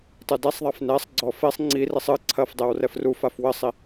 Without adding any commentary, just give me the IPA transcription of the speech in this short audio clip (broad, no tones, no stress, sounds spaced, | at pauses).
tˤ ɨ d ɛ sˤ ðˤ a f n ɛ sˤ ɡ͡ǀ ɔ f e sˤ ŋ͡ǀ i r i sˤ ɨ ǀʰ ɐ f dˤ e w r ɛ f r u f a f w ɘ sˤ i